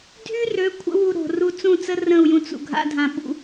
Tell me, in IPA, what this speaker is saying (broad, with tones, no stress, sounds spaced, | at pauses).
dʱ y˦ r ø˨˦ kʷʰ ə̰˦ w u˧ ɾ o̤˨ r u˧ t͡s ũ˦˨ t͡s ə˦ r ə̃˦˨ u̯ j ũ˧ t͡s ṵ˨ ɡʱ a̰˦ dʱ ã˧ ɓ ṵ˧